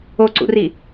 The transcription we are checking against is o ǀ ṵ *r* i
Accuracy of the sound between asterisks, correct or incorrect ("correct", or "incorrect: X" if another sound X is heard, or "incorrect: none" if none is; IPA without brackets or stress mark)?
correct